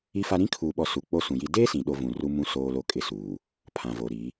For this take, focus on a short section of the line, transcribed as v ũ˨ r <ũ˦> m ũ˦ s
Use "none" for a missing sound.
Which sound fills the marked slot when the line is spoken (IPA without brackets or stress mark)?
u˦